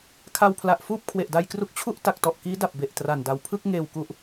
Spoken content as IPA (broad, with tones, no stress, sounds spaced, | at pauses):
kʰ a˧ w pʰ l a˨˩ ʔ f uː˥˩ p̚ kʰ w e˨˩ ʔ d a˧ j k r u˦˥ k̚ t͡ɕʰ u˥˩ ʔ t a˨˩ k̚ t ɔ˨˩ ʔ k iː˦˥ d a˨˩ p̚ b e˨˩ ʔ t r a˨˩ n d a˨˩ w pʰ ɯ˥˩ k̚ ŋ eː˨˩ w k u˨˩ ʔ